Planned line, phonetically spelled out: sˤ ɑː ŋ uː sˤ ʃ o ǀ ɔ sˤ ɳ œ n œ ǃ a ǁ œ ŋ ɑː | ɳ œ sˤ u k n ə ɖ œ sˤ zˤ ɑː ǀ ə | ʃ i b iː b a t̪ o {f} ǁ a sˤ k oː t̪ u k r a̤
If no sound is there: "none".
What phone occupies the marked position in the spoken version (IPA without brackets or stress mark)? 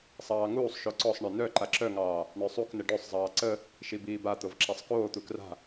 v